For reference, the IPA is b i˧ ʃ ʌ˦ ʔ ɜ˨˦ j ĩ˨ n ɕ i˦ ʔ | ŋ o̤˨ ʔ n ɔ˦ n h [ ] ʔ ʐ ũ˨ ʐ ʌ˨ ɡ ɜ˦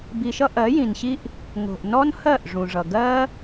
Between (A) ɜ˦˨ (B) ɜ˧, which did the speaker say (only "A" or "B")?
A